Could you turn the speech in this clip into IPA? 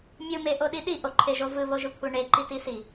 mʲ ɯ m e ʔ o ɗ i ɗ i ʔ o ǃʰ e ʒ o v ɯ β o ʒ ɯ kʷʰ e ɳ e ǃ i t i s i

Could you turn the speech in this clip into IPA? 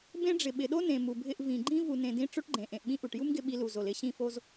b ẽ˥ ɖ͡ʐ ɪ˩ ɓ ɪ˩ ɗ o˥ n ẽ˩ m u˩ bʱ ɪ˧ ʔ v ĩ˩ ɡ͡ǃ ĩ˥ v u˩ n ẽ˩ d ĩ˧ ʈ͡ʂ o˥ ʈ ɡ͡ǃ ẽ˩ ʔ ẽ˩ ʔ ɓ ĩ˥ ʔ u˩ ʈ j u˥ m ɡ ɪ˧ ɓ i˧ l u˩ z o˩ l ɪ˧ ɕ ĩ˧ f o˧ z

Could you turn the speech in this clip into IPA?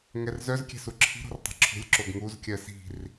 ŋ ɛ r z œ z kʲ ɛ̤ s u ǁʰ i̤ ɾ o̤ r tˤ ɛ̤ ǁʰ ṳ lʲ ǁ o ɡ ŋ u z kʲ ɜ s i̤ r

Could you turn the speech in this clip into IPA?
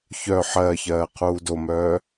ç œ ħ ɜː ç ɜː qʰ uː d o m œː

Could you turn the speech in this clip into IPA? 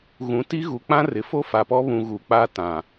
ɣ ũ˨ t i˦ ɣ u˨ k͡p ã˦ r ɪ˨ f o˦ f a˨ p ɔ˦ β ũ˨ ɣ u˨ k͡p a˦ t ã˨

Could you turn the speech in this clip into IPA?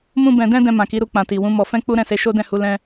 m ũ˦ b ɛ̃˧ d ɛ̃˦ d ɛ̃˧ m ã˨ k i˨˦ ɾ u˧ k͡p ã˨ t i˨ w ũ˨˦ m ɔ˧ f ɛ̃˦ k͡p u˦ ɾ ɛ̃˦˨ s e˨˦ ʃ o˦ d ɛ̃˦˨ h u˨˦ l ɛ̃˧

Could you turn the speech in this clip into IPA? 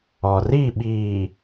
ɔ˨ r i˦˨ ɓ iː˨

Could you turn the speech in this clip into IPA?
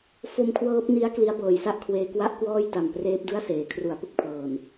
f o˦˥ m kʰ w ɤː˦˥ p̚ n i˦˥ a̯ k l i˦˥ a̯ b ɤː˨˩ j s a˥˩ ʔ kʰ w eː˧ k w a˥˩ ʔ k w ɔː˥˩ j t a˨˩ m p r eː˦˥ p̚ d ɯ˥˩ a̯ s eː˩˦ kʰ r u˩˦ a̯ p ɯ˦˥ k̚ pʰ ɤː˨˩ n

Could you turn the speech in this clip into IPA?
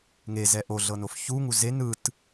ŋ e z ɛ ʔ o ɮ ɤ n o f ç u ŋ u z e n ɯ t

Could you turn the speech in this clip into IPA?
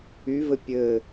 y v ɘ pʲ ɘː

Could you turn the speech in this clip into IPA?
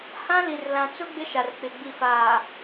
h ã˦ l i˨ r l ã˨ t͡s ʊ˦ ɡ͡b ɪ˦ ʃ a˨ r k͡p ɪ˨ ɡ͡b i˨ f aː˨

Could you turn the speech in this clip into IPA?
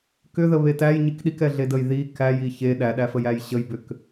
k ʏ ð ə β e t æ j ɲ i k ɗ i k ɛ ɮ e d ə j ð i k æ j i ç e ɗ æ ɗ æ f ə j æ j ɕ ə j b ʏ k

